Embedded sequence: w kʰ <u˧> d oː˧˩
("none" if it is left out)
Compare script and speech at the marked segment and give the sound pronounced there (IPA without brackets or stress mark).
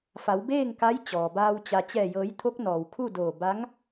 u˥˨